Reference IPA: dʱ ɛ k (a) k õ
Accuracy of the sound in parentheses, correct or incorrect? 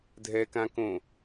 incorrect